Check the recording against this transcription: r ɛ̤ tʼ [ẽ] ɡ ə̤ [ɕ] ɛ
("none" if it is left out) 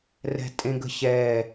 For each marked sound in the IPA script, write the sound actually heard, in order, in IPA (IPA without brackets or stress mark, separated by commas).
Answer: ẽ, ɕ